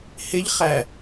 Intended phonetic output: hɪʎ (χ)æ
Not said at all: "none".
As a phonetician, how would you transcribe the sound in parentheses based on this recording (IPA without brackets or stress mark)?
χ